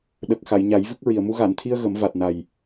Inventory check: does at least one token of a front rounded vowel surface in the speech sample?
no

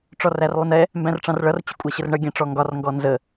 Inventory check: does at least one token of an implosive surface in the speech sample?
no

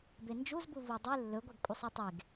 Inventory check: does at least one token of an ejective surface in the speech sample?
yes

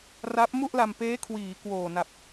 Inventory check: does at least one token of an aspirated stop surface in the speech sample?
yes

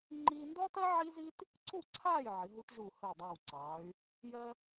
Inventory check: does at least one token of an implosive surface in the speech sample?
no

